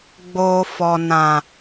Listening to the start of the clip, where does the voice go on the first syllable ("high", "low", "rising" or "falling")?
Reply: low